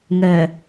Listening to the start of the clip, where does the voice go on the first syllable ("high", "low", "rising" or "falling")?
low